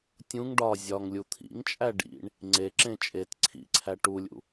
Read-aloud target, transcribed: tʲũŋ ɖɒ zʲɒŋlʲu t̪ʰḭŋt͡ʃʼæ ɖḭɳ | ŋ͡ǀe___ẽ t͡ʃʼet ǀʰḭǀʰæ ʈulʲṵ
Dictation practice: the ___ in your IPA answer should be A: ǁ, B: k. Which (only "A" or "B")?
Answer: A